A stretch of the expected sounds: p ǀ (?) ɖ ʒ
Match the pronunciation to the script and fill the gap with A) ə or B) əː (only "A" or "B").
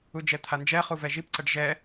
A